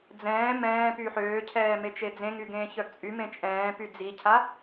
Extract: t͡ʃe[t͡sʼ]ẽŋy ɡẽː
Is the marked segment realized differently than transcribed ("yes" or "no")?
yes